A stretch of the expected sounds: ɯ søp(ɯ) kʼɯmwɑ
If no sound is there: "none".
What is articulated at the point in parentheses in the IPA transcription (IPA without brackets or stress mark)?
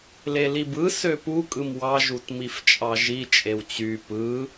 u